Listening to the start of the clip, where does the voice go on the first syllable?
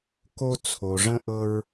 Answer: high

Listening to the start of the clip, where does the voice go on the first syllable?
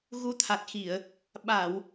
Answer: rising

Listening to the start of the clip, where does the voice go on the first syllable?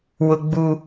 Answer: high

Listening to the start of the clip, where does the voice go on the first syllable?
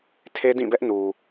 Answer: high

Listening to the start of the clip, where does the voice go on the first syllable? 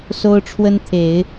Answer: high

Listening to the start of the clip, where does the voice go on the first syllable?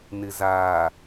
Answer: low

